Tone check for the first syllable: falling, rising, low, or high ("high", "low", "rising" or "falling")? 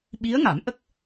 rising